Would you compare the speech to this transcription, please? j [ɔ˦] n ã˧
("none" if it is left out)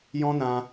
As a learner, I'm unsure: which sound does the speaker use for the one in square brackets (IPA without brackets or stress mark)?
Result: ɔ̃˦